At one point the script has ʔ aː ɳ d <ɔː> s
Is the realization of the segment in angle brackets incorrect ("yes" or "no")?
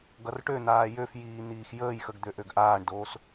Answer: yes